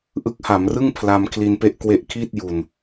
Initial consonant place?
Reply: glottal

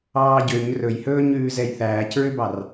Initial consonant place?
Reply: palatal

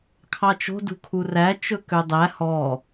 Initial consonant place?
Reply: velar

